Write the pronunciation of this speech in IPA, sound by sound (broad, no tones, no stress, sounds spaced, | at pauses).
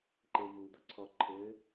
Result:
ǃ e v u d̪ ʌ ǀʰ ɔ ǃʰ ɘ